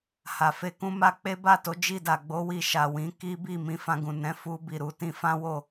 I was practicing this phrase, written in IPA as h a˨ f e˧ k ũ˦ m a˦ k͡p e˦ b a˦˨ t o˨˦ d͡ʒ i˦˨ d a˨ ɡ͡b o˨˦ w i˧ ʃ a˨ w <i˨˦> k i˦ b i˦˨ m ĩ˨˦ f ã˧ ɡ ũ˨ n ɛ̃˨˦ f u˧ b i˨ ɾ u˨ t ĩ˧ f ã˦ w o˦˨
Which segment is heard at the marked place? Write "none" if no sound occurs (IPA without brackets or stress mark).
ĩ˨˦